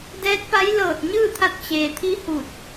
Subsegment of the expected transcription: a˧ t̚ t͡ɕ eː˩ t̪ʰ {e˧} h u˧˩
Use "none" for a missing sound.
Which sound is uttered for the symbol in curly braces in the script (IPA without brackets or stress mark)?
i˧